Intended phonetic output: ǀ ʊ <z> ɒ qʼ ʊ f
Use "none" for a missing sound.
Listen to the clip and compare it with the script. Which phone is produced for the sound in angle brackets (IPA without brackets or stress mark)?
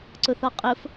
θ